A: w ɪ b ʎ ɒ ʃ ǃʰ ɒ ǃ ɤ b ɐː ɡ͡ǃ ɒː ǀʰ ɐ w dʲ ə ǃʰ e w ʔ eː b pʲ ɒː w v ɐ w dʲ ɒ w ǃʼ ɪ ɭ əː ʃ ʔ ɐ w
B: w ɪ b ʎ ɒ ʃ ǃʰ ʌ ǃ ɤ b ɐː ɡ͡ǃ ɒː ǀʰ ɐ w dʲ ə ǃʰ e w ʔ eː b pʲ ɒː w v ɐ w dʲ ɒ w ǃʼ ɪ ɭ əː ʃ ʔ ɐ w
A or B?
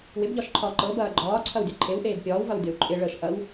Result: A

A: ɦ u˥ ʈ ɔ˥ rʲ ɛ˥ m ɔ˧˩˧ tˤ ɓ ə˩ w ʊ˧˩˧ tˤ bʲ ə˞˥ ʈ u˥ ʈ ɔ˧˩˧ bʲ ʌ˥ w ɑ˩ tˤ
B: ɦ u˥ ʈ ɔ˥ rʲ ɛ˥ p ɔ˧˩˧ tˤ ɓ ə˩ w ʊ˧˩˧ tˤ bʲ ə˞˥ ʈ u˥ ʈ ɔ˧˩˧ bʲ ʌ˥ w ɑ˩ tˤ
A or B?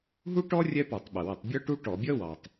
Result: B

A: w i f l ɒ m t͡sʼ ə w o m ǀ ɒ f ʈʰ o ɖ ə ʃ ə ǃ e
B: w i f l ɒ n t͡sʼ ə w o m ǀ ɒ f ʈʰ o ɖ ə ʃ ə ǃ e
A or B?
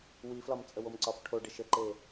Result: A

